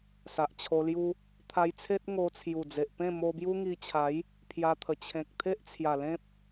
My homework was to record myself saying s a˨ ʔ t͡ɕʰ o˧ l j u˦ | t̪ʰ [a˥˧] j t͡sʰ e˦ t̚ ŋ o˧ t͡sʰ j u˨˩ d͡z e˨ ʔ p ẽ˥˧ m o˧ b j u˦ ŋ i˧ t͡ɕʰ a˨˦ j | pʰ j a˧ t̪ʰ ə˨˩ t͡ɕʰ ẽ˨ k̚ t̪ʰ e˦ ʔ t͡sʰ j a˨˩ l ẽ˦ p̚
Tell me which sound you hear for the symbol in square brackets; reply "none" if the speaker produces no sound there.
a˧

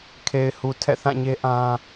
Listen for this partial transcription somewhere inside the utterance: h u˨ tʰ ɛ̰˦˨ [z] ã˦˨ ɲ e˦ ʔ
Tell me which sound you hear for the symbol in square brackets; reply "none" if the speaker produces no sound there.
θ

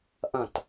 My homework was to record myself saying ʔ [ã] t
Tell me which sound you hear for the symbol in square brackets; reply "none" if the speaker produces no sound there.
ɐ̃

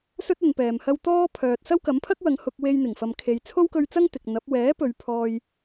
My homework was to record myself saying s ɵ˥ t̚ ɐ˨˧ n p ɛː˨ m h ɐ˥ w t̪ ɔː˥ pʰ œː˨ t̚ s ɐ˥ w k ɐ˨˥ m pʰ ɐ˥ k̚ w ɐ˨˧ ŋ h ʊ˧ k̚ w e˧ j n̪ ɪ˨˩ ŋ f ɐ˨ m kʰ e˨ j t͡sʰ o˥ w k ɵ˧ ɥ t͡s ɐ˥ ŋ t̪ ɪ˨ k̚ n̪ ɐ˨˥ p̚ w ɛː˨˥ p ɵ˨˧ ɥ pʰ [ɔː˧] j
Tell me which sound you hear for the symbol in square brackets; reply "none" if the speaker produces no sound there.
ɔː˧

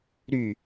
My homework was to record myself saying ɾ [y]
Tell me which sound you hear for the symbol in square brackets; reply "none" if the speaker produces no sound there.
y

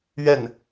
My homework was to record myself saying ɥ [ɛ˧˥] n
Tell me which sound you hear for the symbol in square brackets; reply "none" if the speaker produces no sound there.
ɛ˥˩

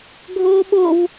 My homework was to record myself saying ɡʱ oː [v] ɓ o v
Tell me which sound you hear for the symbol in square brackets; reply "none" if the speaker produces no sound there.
none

